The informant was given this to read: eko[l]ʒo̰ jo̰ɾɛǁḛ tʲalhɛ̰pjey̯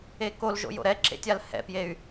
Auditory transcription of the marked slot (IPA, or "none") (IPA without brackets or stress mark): l